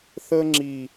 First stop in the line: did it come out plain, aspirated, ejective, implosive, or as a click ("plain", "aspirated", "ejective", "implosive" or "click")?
click